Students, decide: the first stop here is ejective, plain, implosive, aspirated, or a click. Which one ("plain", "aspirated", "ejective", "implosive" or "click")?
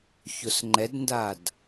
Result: click